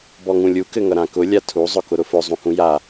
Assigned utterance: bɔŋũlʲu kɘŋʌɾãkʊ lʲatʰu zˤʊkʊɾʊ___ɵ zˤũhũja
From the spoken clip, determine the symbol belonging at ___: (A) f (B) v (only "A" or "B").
A